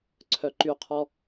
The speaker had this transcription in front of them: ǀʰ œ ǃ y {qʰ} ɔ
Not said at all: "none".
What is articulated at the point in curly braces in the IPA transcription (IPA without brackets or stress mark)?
qʰ